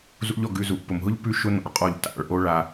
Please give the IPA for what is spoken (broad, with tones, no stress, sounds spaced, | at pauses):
z ṵ˦ ʎ ɔ˧ ɡ ʉ˧ z u˨ ʔ p ʊ˨ m ɦ ʊ˦ ʎ p ʉ˧ ʃ ʊ˧ n̪ ɔ̰˨ ɭ qʼ ɔ˦˨ ʎ t a̰˨ ɭ ʔ o˧ ɭ a˧